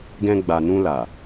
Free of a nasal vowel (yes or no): no